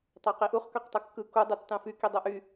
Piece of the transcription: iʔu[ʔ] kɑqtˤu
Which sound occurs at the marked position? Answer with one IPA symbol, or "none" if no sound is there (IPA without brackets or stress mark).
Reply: χ